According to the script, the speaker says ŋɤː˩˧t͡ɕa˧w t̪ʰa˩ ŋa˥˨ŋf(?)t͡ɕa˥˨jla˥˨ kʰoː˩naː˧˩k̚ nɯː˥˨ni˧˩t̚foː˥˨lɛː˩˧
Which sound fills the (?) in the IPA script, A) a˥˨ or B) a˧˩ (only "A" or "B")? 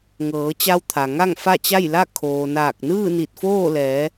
A